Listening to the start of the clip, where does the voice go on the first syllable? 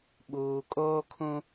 low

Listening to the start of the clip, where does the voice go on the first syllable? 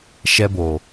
high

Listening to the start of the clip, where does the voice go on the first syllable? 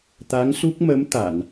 rising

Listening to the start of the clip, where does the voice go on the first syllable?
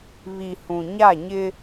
low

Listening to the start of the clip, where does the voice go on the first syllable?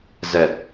low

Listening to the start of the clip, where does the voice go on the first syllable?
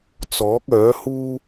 rising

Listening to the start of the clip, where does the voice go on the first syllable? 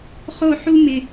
falling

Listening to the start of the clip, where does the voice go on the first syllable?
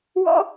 high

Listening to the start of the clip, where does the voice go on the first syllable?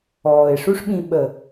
low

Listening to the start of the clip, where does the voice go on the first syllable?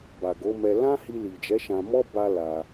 low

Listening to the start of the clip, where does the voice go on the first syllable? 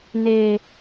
low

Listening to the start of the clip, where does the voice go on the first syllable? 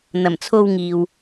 low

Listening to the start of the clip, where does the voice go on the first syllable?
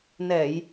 low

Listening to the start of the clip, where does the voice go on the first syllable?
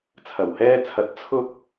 low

